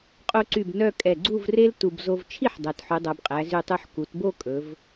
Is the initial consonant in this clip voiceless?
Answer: yes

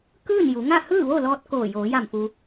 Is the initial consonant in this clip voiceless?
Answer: yes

